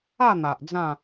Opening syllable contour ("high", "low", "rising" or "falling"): falling